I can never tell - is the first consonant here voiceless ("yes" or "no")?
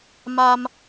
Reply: no